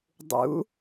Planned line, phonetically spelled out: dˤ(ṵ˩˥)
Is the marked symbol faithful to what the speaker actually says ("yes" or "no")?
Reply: yes